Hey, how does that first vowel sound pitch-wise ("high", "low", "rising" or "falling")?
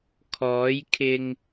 rising